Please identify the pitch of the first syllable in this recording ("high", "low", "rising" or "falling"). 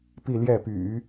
falling